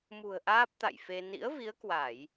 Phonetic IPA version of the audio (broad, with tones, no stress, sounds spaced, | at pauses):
m ṳ˨˩ ə̯ ʔ aː˦˥ p̚ t̪ a̰˧˨ j f e˧ n ḭ˧˥ ə̯ v i˨˦ ə̯ k w a˧˩˨ j